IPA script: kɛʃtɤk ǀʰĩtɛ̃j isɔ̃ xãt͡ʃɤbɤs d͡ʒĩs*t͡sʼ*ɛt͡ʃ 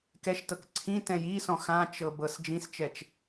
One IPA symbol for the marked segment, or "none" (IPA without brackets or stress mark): t͡ʃ